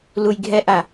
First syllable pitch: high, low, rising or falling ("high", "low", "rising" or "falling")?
low